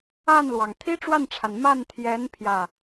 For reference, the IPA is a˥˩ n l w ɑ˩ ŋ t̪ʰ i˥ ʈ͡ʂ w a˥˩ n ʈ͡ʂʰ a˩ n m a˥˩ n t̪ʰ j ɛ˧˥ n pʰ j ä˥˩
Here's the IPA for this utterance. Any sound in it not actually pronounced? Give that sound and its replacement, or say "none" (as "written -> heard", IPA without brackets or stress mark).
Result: none